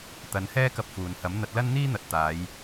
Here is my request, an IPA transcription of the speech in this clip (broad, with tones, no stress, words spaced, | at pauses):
t̪ɐ˨˧nhɛː˥kɐ˧p̚ fuː˨nhɐ˨˥m n̪ɐ˧t̚lɐ˥nn̪iː˥n̪ɐ˨˥t̚ t̪aː˨˧j